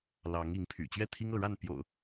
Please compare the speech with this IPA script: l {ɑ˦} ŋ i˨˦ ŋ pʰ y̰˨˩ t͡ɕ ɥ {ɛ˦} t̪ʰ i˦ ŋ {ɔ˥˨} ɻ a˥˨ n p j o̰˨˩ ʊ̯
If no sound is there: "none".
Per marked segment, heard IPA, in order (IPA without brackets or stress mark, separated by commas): ɑ˨˦, ɛ˥˨, ɤ˥˨